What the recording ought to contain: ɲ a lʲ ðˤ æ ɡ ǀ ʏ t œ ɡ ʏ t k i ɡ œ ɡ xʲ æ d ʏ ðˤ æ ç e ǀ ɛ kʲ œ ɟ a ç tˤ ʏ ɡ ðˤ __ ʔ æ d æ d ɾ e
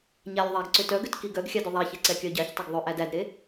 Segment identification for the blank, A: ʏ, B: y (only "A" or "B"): A